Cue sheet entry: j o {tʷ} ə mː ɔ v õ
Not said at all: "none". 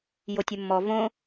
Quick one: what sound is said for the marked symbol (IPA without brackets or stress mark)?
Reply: tʲ